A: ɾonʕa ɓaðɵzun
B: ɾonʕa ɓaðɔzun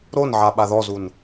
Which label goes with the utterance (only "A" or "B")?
B